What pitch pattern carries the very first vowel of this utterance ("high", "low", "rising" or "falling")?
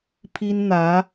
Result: high